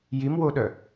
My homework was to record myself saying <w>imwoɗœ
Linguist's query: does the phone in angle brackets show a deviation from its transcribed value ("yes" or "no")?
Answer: yes